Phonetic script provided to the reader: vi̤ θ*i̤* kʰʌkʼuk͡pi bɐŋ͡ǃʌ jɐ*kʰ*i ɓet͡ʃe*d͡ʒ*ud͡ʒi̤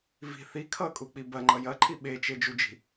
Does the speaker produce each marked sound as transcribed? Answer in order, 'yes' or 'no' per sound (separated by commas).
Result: no, no, yes